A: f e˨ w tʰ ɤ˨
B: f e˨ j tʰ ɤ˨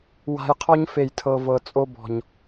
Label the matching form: B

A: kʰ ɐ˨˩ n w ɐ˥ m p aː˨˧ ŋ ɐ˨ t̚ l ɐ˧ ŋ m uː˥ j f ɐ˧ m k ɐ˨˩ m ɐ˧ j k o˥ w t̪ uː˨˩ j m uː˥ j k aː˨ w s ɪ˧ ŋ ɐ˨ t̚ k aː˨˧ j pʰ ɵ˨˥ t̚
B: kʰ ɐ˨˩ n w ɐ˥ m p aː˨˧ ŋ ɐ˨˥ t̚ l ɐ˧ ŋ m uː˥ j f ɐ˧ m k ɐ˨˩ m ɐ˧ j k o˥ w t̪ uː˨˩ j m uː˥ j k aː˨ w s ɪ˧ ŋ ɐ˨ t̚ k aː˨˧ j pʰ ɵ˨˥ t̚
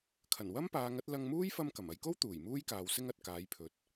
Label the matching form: B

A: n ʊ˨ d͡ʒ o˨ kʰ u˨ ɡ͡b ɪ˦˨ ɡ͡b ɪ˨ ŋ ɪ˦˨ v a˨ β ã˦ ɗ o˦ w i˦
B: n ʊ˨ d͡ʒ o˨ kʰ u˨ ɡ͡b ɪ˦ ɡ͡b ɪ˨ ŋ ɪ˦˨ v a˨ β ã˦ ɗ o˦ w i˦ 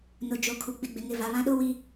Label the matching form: A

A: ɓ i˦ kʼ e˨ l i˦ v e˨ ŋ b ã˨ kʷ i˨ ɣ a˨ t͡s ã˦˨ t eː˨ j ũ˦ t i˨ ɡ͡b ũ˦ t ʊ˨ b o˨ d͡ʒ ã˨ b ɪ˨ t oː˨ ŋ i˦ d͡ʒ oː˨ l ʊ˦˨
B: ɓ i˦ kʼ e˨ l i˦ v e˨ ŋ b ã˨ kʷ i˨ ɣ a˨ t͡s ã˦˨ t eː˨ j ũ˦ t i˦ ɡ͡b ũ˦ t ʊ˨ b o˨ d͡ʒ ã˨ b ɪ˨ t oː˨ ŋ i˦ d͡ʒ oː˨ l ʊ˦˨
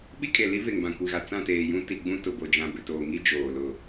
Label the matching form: A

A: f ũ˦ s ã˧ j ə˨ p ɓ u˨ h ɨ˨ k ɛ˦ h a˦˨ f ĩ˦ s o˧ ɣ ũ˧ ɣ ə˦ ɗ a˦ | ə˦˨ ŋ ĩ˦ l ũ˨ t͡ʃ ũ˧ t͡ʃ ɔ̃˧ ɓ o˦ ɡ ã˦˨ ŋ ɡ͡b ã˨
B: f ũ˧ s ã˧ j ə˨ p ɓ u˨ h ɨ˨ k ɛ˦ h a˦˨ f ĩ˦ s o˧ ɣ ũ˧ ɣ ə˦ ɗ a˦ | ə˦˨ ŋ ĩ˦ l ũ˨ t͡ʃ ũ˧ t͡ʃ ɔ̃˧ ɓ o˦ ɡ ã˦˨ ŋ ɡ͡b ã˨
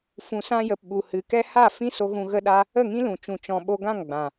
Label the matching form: B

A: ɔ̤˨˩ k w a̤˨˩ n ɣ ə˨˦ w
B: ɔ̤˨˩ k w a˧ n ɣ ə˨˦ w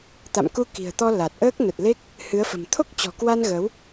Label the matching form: B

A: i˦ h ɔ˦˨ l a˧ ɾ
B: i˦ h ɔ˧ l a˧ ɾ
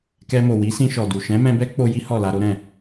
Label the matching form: A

